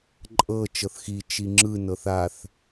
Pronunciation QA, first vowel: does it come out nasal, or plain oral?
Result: oral